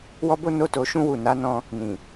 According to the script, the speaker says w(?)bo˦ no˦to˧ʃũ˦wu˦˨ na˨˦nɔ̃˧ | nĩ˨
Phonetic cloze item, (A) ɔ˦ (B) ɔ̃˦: A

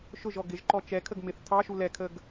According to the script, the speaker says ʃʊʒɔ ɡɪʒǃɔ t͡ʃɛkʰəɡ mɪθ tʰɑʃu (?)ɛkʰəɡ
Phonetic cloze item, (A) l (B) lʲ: A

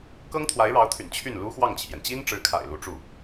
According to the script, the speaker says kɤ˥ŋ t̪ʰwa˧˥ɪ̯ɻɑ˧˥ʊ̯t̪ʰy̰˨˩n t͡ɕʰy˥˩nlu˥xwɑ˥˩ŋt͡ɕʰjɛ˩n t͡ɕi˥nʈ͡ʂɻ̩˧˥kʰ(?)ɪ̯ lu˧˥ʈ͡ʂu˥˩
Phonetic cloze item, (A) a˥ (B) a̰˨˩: B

